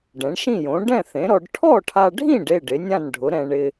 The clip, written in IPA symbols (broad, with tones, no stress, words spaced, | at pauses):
ɖɛ̃˩˥ɳʃĩ˥˩jõ˩˥ ɖɛ̃˥˩θẽ˩˥ɾɔ˧ɖ ʈʰɔ˥˩ʈʰa˧ɖʱĩ˥˩ɖ e˥˩ɖɪ˩˥nʲã˥˩nɖʱʊ˩˥ ɾɛ̃˧ ɳɪ˧